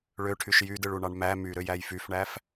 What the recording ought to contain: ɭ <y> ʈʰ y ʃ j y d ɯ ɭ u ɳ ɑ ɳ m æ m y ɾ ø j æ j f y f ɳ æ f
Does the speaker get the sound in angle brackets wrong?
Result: yes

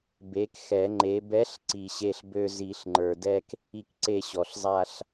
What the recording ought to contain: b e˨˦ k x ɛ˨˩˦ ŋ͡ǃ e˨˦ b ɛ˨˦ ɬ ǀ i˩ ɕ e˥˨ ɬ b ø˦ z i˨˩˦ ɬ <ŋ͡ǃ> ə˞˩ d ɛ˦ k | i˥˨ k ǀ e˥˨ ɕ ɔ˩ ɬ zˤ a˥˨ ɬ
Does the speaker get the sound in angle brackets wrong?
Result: no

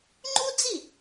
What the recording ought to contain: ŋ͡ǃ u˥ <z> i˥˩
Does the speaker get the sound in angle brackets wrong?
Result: yes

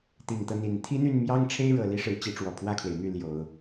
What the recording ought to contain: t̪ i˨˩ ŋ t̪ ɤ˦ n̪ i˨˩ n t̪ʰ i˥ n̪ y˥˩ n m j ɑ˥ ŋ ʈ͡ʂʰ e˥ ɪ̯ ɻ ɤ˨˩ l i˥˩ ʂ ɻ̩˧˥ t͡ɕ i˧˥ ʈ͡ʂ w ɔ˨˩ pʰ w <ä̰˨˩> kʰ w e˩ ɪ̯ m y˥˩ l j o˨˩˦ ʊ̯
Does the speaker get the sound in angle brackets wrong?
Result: yes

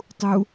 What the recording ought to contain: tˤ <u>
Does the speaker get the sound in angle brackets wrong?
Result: no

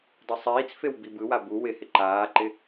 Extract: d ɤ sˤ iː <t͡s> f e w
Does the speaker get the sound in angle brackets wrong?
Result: no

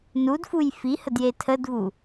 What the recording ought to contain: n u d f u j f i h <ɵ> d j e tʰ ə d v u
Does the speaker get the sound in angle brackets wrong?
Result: yes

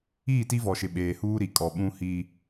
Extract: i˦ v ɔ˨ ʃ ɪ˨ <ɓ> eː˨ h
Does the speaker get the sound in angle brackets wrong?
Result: no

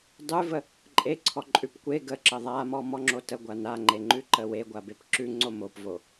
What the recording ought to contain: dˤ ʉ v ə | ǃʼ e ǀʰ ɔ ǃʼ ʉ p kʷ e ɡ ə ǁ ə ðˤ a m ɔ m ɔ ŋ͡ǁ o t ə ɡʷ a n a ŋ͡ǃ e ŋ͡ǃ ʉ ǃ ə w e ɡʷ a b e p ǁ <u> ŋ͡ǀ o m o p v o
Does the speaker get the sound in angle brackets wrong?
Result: yes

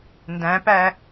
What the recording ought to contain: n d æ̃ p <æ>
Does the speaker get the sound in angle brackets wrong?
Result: no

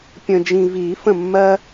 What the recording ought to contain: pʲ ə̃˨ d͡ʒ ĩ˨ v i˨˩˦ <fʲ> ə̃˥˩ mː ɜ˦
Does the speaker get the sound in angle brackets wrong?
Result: yes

